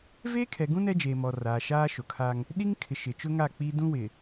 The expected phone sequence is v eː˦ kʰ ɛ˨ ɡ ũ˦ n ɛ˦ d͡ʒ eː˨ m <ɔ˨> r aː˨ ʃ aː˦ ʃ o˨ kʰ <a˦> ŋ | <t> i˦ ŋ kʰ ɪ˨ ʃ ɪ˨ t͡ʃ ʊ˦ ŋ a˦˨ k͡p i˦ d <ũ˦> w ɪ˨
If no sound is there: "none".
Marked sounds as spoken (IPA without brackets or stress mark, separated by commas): ɔ˨, a˦, ɗ, ũ˦